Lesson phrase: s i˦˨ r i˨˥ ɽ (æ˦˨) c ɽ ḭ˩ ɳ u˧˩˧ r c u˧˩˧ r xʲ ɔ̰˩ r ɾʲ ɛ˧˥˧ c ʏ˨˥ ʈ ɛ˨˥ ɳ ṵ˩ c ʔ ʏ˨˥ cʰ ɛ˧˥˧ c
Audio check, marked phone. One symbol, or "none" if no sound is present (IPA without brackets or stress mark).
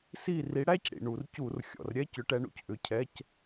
æ˧˥˧